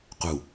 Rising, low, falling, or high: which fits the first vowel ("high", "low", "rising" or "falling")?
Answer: low